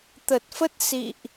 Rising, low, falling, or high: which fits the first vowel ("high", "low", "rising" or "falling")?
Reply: low